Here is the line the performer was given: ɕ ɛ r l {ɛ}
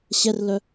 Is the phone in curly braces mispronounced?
yes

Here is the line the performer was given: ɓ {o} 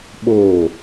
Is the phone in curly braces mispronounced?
no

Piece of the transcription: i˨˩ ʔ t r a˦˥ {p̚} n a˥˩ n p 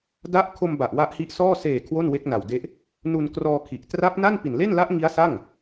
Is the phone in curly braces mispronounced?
no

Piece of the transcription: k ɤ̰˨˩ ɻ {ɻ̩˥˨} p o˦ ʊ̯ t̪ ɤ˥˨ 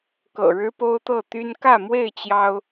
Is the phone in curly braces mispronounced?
yes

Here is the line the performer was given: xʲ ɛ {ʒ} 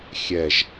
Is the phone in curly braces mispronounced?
no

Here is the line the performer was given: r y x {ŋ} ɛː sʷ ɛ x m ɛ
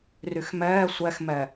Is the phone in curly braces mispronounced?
yes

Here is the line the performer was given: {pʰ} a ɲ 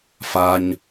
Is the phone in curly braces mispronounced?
yes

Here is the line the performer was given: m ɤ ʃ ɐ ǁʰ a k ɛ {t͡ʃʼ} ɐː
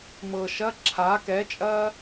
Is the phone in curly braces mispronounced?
no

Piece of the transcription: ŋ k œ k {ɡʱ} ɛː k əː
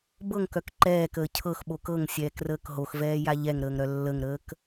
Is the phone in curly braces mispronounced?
yes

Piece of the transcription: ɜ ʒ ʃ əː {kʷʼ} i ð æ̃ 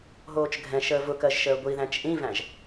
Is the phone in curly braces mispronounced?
yes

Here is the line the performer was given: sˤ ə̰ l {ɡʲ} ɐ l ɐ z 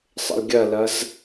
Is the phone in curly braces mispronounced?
no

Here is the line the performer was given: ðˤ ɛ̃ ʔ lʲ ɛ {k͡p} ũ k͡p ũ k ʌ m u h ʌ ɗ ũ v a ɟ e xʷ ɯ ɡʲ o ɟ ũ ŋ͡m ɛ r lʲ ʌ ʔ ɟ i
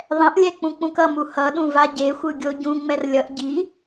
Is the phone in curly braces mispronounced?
no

